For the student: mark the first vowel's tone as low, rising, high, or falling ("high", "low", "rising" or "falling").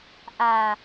low